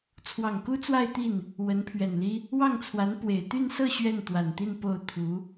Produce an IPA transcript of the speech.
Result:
t͡sʰ w ɑ˨˩ ŋ k u˥ t͡s w a˥˧ ɪ̯ t̪ i˥˩ n | w ə˧˥ n pʰ ɥ ɛ˨˩ n l i˥ | w ɑ˥˩ ŋ t͡sʰ w a˧˥ n p w e˨˩ ɪ̯ t̪ y˥˧ n s ɤ˥˧ ɕ ɥ ɛ˥˩ n t̪ w a˨˩ n t̪ i˥˧ n p o˥˩ ʊ̯ t̪ʰ u˧˥

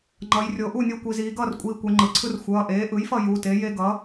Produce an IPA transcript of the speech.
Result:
ŋ͡ǃ ʌ˩˧ j rʲ o˩˧ ʔ u˥˨ nʲ o˦ kʷ i˩˧ z iː˩˧ ɡ ʌː˥˨ r kʷʼ iː˩˧˩ kʷ ɛ˩˧ ŋ͡ǃ ɯ˩ ǀʰ ɯ˦ r xʷ ʌː˩˧˩ ʔ eː˩˥ ʔ ɯ˩˥ j f ʌ˥˨ j u˩˧˩ t e˩˥ j e˦ ɡ ʌ˩˥

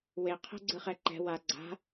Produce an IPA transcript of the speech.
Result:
w e qʰ ɛ̤ ɡ͡ǀ ɯ χ ɛ ǃ ɛ̤ w a ɡ͡ǀ a̤

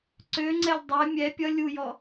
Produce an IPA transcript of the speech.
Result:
ǀ ø ŋ͡ǀ ɛ lʲ dˤ ɛ mʲ ɛ pʲ ʌ lʲ u j ɔ

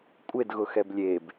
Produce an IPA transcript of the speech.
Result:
kʷʼ e d ɣ ʊ x ɛ b lʲ e b

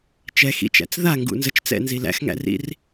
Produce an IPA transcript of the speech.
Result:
t͡ʃ ɛ x ḭ t͡ʃ æ̰ t͡s ð a ŋ ɡ ṵ n z ə t͡ʃ t͡s ɛ̰ n z i l æ̰ x ŋ æ̰ r ḭ r

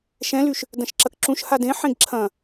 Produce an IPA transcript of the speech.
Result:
ʃ ɛ̃ l y ʃ | d ɐ̃ ʃ ǁ ɐ k ǁ ũ ʃ h a d ẽ ħ ẽ ɡ ǁʰ ɐ̃

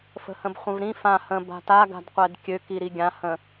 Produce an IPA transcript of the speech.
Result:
f ə̤ h ə̃ b χʷ ə̃ v ɾ ĩ f ã h ə̃ b a̤ t a ɡ a̤ d qʷ ɛ d kʲ ø k i ɾ i ɡʲ ã h ə̃

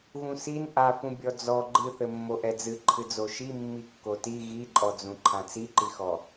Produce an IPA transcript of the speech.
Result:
ɣ ũ s i n ʔ a f ũ bʲ ɔ d͡z ɔ ɡ͡ǃ ɨ θ ɘ mː o ʔ ɛ d͡z ɨ ǃʰ ɨ d͡z o ʃ i mː i kː o t i ɣ i ǃʼ ɔ d͡z ũ ǃʰ ã t͡s i ǃ i x ɔ

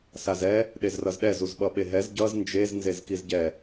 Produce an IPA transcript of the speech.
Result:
s a z ɛ | ɗ e z r ʌ z ɗ ɛ z u z ɓ ʌ ɓ e ɦ ɛ z ɟ ʌ z n d͡ʒ e z n z e z k i z ɟ ɛ

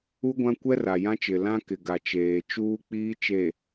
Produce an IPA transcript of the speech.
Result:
u˦ ɡʷ ã˦ kʷ ɛ˦ r a˨ j ã˦ t͡ʃ ɪ˨ l ã˦ k ɪ˨ ɡ a˨ t͡ʃ eː˨ t͡ʃ uː˦ k͡p iː˦ t͡ʃ e˨

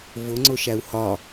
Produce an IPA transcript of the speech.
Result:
v ʊ ŋ͡ǀ ʊ ʃ æ u̯ h ɒ

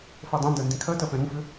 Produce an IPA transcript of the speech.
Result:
f ɜ dˤ ɛ̃ n d ɜ n d ĩ kʰ ɜ t ɜ p ɛ̃ ɾ ũ f ʏ

